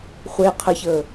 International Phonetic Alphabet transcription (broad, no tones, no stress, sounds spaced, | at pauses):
χʷ e qʰ ə ç əː